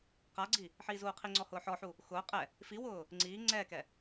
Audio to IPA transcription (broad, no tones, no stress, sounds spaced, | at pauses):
q a ɡ͡ǀ i | ħ iː z uː qʰ i ŋ͡ǀ ɔ h ʊː ħ ɔ ħ u | x ʊː qʼ ɛ | f i w ʊː | ŋ͡ǀ iː ŋ͡ǀ ɛː k ɛ